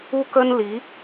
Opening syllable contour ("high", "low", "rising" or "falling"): high